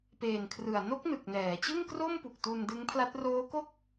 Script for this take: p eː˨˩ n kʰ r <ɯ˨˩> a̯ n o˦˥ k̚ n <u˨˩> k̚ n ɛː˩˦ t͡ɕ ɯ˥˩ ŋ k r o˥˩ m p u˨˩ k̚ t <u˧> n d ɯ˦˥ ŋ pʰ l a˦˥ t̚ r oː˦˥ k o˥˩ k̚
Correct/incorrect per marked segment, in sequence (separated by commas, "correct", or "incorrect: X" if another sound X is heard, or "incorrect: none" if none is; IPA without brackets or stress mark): correct, incorrect: ɯ˨˩, correct